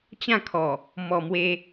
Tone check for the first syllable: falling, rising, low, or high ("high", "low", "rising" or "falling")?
falling